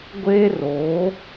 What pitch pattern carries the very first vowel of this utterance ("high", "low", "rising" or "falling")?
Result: high